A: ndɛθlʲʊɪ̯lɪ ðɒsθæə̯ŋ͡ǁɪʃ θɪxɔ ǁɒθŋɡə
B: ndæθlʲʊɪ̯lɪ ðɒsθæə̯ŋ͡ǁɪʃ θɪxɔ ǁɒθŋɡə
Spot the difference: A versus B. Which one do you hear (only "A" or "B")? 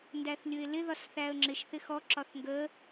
B